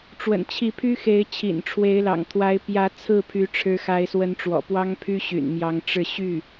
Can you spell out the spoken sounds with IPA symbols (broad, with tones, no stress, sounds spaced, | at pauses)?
ʈ͡ʂ w ə̰˨˩ n t͡ɕʰ i˧˥ pʰ y˥ x e˧˥ ɪ̯ t͡ɕʰ ḭ˨˩ n ʈ͡ʂʰ w e˧˥ ɪ̯ l ɑ̰˨˩ ŋ t̪ʰ w a˧˥ ɪ̯ p j ä˧˥ t͡sʰ ɹ̩˥˩ pʰ y˧˥ ʈ͡ʂʰ ɻ̩˧˥ x a˧˥ ɪ̯ s w ə˧˥ n ʈ͡ʂ w ɔ̰˨˩ p w ɑ˥ ŋ pʰ y˥ ɕ y̰˨˩ n m j ɑ˧˥ ŋ ʈ͡ʂ ɻ̩˥˧ ɕ y˥˩